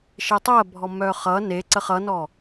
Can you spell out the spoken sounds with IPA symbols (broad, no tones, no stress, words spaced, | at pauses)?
ʃetˤɜbʱɔ mœχʌ neǀəχ ʌnɔ